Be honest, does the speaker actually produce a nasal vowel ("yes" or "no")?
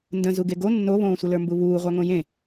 yes